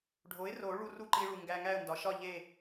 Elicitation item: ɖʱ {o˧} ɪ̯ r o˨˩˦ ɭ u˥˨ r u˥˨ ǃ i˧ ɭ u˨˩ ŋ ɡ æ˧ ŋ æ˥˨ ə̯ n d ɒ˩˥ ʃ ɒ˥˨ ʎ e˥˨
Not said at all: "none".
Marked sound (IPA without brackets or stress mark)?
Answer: o˩˥